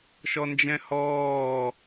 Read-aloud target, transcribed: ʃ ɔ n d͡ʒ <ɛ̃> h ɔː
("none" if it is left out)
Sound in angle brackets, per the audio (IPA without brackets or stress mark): ɛ̃